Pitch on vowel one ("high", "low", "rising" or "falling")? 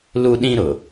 high